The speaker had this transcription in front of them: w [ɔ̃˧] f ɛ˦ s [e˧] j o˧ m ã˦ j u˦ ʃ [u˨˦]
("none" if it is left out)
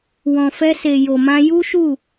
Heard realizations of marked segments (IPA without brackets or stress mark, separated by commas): ɔ̃˧, e˧, u˦˨